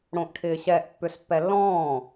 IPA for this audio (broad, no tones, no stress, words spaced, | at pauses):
ɽõʔʈʰɪːɕɛʔ pːʏspːɛlːɔ̃ː